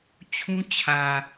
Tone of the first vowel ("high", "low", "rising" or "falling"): high